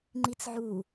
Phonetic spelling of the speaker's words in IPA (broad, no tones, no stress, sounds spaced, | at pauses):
ŋ͡ǃ i t͡s ʕ u